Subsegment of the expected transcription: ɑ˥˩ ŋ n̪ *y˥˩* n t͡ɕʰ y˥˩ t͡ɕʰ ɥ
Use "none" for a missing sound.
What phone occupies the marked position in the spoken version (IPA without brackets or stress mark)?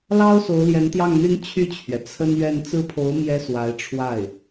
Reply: y˥